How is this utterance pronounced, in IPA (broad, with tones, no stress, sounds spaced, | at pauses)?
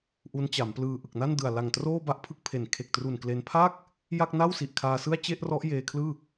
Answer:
ʔ u˦˥ n t͡ɕ a˩˦ m p l ɯː˧ ʔ ɯ˨˩ k̚ n a˥˩ n d ɯ˨˩ a̯ l a˨˩ ŋ t r oː˥˩ b a˥˩ ʔ pʰ ɯ˥˩ k̚ pʰ e˨˩ n kʰ e˨˩ k̚ t r u˨˩ n k l e˧ n pʰ aː˥˩ k̚ | j a˥˩ k̚ n a˥˩ w s i˨˩ ʔ kʰ aː˧ s ɯ˥˩ a̯ t͡ɕ e˥˩ ʔ r ɔ˦˥ ʔ j eː˧ kʰ l ɯː˥˩